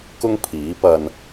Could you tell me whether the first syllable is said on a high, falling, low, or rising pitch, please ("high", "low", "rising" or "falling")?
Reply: high